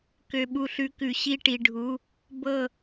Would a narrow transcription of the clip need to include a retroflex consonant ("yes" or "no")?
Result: yes